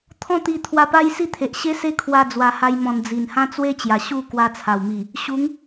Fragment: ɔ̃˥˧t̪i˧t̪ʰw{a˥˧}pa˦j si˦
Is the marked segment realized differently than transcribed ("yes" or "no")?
yes